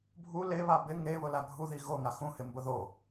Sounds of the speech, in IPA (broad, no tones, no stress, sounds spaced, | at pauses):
bʱ u l e β a b ɪ ŋ e β ʊ l a ɡʱ u ð i ɣ o ŋ a x ũ h ɪ m b ʊ ð o